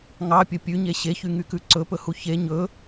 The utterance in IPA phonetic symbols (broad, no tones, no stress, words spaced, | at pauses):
ŋɑpʲɵ pʲʉɲe ɕeçyŋykʉ ǀɵpɵhu çe ɲɵ